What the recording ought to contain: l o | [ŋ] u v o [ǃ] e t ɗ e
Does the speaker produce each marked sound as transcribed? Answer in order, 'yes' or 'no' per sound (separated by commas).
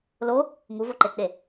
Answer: yes, yes